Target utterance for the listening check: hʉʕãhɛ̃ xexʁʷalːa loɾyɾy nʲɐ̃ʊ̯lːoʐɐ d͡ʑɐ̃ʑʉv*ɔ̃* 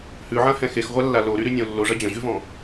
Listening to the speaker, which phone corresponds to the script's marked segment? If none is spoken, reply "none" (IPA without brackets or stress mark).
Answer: ɔ̃